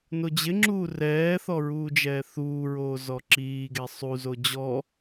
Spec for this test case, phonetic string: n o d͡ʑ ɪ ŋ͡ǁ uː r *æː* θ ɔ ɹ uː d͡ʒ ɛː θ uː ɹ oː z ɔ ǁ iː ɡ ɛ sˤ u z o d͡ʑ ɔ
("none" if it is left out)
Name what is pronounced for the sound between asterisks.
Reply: ɛː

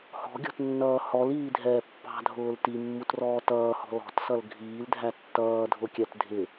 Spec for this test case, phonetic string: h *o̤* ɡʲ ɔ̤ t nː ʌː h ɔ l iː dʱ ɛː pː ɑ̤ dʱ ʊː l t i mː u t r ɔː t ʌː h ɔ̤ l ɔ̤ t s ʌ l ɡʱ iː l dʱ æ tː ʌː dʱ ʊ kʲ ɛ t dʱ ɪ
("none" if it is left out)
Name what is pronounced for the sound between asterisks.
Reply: ɔ̤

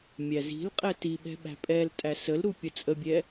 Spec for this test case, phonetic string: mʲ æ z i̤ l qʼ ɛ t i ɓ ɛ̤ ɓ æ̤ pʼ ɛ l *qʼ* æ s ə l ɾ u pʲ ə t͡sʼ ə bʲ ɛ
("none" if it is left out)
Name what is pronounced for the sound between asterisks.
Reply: tʼ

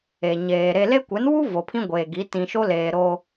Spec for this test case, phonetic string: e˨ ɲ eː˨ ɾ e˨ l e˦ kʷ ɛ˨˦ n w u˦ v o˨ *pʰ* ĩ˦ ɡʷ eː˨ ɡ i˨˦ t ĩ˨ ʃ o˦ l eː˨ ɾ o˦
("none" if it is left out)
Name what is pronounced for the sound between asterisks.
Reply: pʰ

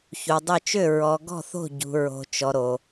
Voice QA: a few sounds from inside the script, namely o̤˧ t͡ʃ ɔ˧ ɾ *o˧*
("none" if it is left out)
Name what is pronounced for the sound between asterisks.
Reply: o˧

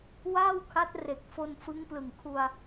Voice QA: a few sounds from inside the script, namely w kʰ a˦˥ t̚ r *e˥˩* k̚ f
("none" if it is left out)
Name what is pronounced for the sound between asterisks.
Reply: e˨˩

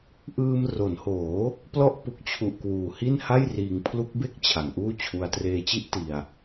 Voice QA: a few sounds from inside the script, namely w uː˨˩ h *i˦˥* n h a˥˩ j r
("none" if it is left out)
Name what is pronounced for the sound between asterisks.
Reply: i˥˩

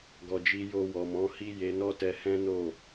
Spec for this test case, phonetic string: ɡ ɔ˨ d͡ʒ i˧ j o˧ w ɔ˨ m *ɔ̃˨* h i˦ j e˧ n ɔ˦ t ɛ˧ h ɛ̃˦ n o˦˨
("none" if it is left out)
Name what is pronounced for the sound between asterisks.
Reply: ɔ̃˨˦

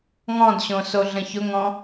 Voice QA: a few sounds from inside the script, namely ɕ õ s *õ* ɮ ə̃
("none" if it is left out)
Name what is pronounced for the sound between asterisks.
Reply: o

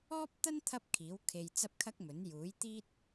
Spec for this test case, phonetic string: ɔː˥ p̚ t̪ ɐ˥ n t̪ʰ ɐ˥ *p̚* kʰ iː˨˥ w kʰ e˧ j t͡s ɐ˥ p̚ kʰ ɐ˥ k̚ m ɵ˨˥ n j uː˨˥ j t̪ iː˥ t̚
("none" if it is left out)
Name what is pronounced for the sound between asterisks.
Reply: p̚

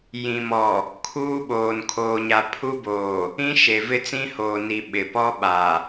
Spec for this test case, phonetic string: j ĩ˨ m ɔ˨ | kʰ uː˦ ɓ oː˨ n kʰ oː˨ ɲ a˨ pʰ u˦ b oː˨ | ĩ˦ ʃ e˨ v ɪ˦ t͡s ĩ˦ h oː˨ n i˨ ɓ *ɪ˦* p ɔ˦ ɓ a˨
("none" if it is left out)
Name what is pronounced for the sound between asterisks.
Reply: ɪ˨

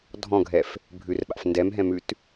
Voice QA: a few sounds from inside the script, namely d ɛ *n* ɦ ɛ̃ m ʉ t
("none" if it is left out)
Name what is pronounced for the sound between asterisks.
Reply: m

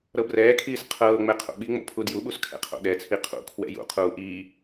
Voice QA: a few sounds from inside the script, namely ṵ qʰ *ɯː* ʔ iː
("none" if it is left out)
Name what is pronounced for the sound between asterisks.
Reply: uː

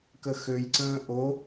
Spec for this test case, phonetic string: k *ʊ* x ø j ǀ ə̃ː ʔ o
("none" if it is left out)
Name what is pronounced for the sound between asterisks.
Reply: ə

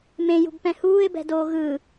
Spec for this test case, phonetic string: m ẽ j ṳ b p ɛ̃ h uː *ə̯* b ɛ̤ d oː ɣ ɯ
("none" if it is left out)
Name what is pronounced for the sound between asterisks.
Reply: ɪ̯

